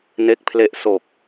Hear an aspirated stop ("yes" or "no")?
yes